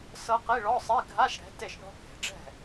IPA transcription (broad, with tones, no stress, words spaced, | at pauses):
sɤ˦˥qi˧˥˧ɭɔ˧˥˧sˤi˧˥˧ ɡʱa˧˥˧ʃɽɛ̤˨˦ te˥˩ʃɳɔ̤˦˥ke̤˨˩˦ɖ͡ʐɛ̤˥˩